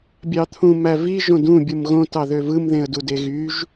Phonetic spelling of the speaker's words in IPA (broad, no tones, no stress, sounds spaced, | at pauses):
bʲ ɑ t̪ʰ ũ m æ v i ʒ õ d ũ bʲ ɯ m ɣ õ t ɑ ð ø v ɯ m ð ẽ ə̯ d u d e ɣ y ʒ